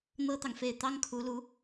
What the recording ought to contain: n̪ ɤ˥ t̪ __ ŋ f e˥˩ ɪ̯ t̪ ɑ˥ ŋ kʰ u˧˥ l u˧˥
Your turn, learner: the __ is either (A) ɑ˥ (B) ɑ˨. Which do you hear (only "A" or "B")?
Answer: B